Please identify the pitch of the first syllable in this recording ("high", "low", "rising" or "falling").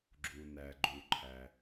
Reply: low